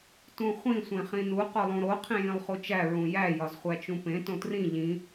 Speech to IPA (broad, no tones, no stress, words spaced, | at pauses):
tũχʷĩ sʷẽχĩnu qolˠũɾo qʰĩjĩlˠχut͡ʃæ ɹũjæ jɒzχʷæt͡ʃũpẽ tõtrĩ ʎĩ